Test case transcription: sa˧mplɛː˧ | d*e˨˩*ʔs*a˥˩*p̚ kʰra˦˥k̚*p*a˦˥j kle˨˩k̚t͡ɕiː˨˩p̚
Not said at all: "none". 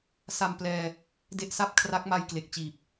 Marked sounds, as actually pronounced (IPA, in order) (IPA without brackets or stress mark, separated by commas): e˦˥, a˥˩, m